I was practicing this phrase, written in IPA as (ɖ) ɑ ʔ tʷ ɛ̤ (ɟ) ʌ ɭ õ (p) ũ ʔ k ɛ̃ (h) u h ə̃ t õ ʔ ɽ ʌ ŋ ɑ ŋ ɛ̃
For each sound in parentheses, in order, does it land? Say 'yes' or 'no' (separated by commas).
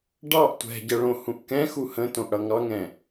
yes, yes, no, no